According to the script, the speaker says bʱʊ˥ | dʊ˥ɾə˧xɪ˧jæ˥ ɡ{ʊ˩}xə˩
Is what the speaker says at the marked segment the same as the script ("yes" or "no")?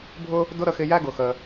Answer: yes